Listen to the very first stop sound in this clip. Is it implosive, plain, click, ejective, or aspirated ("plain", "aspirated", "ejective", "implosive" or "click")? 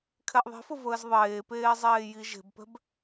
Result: aspirated